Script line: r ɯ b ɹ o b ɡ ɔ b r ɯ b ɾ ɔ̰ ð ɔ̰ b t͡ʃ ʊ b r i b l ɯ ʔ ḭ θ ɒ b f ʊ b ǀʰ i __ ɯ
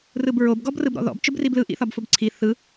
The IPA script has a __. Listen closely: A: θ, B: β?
A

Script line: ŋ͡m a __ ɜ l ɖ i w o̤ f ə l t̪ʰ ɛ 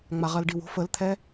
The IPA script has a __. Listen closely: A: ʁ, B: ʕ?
A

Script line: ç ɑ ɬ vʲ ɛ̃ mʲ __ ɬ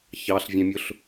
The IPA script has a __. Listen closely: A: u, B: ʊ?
B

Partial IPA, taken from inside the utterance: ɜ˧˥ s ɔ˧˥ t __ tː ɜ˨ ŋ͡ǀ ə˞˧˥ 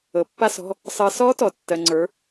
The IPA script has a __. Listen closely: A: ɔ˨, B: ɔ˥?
A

